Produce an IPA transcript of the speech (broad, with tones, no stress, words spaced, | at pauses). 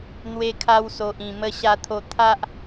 n̪we˧kʰa˧wso˨ʔĩ˨˩ mə˧ɕa˧t̪ʰo˧ t̪ʰa˦ʔ